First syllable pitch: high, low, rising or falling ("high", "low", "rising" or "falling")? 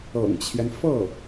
low